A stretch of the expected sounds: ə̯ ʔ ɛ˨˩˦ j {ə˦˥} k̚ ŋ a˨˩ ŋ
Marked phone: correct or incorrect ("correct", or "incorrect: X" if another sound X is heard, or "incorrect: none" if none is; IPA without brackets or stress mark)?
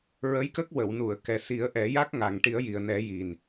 incorrect: a˦˥